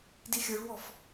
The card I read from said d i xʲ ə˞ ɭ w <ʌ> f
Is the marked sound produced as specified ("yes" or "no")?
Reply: no